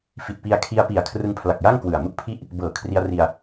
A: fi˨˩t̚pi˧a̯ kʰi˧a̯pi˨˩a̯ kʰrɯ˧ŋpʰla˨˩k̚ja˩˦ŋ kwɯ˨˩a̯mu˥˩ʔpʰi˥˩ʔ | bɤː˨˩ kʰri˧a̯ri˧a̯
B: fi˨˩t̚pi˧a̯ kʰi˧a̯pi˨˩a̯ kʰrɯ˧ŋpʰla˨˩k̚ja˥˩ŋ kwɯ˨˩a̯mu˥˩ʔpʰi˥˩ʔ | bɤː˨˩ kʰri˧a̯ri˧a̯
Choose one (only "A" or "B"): B